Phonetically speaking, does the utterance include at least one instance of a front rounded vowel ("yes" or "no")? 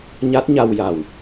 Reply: no